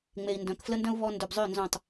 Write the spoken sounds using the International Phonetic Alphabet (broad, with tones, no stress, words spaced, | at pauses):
ŋ͡me˨i̯ndœ̃˨kflə˦ndœ̃˦u̯ βɔ˦ ndø˨bzˤø˦˨ nzõ˦˨tˤ